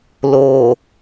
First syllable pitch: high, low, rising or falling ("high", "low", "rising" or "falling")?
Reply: low